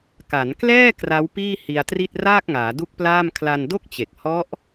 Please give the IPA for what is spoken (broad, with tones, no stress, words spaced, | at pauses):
ka˩˦n klɛː˥˩ kra˦˥wpiː˥˩ hi˧a̯tri˥˩t̚ raː˥˩k̚ŋaː˩˦du˦˥k̚plaː˥˩m kʰla˧ndo˥˩k̚t͡ɕe˨˩k̚ hɔ˦˥ʔ